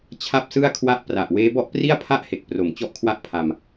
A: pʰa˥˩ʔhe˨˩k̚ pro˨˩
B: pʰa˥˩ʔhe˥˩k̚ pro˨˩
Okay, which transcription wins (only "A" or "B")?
A